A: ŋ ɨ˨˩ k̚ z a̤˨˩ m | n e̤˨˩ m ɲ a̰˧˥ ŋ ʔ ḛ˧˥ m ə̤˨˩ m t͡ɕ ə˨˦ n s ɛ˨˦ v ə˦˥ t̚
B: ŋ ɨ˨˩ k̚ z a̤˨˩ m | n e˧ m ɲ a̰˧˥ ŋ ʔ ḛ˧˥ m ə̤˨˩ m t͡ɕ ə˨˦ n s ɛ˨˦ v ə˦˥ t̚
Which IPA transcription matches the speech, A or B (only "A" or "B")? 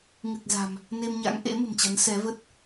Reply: B